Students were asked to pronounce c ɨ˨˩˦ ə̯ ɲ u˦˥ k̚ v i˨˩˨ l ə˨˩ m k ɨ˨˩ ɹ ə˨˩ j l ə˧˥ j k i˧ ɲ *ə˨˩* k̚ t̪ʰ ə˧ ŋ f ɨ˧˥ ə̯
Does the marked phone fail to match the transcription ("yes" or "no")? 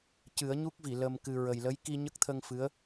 yes